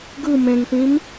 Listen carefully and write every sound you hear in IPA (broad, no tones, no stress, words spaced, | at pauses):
ɡɯ mẽŋtĩm